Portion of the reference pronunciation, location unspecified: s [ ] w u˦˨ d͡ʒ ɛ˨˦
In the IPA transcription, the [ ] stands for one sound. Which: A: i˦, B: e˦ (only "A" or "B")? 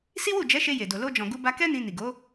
A